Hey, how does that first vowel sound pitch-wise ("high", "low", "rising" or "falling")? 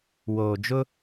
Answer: low